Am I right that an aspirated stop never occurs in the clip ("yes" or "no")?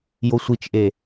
yes